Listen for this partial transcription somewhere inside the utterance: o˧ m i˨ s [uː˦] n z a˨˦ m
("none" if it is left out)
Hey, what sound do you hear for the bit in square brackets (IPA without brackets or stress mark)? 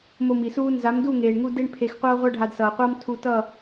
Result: uː˦